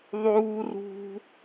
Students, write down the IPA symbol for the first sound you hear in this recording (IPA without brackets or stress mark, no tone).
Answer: ðˤ